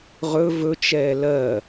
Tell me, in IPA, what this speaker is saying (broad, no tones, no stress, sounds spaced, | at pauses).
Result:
ʁ ɵ v ɵ t͡ʃ ɛː l ɜ